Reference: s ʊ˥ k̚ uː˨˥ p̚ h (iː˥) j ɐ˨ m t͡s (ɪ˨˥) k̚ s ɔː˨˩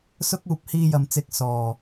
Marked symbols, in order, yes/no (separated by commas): no, yes